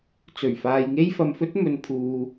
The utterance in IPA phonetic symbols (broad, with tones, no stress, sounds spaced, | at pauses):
t͡s ɵ˨˩ ɥ f aː˨ j ŋ e˥ j f ɐ˨ m f ɵ˥ t̚ m ɵ˨ n pʰ uː˨